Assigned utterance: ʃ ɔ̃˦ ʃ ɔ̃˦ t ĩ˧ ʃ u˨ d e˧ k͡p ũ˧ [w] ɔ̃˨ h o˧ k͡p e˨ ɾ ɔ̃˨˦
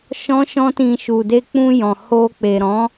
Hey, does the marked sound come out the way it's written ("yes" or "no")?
no